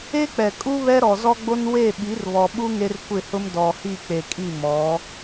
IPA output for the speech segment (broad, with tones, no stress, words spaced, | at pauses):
e˦k͡pɛ˨kʼu˦ βɛ˦ɾɔ˨zɔ˦ɡ͡bo˦n we˦˨ ɓi˨˦rβɔ˨ɓu˦ ŋe˦rkʷɪ˦˨hʊ˦m dɔ˨hi˦˨ k͡pe˨kʼi˦˨mɔ˨˦